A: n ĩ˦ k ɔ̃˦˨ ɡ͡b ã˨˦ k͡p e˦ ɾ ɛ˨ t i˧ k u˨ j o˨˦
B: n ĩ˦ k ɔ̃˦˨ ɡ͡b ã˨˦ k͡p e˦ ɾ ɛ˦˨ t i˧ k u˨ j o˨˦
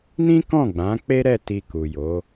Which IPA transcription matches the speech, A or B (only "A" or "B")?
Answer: B